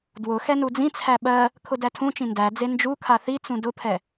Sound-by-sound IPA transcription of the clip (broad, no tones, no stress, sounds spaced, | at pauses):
d w ʊ x ɛ n u d͡z ĩ t͡sʰ æ ɓ ɜ | kʰ ʊ d æ tʰ ũ t͡ʃ ĩ n d æ d͡z e n d͡ʒ u kʰ a θ i t͡s ũ d ʊ pʰ ɛ